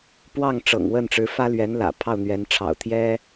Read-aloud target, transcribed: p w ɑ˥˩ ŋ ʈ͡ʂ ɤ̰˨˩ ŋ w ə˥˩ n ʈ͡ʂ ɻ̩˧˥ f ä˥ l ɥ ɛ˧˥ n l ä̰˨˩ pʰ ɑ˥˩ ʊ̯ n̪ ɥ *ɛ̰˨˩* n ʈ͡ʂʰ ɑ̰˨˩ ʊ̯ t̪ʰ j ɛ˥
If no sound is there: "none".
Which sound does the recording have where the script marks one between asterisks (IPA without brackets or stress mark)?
ɛ˧˥